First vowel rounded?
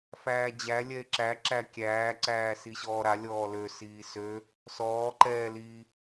no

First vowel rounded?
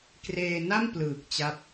no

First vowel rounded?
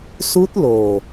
yes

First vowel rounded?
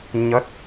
no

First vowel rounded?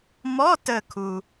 yes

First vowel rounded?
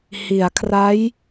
no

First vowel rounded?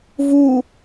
yes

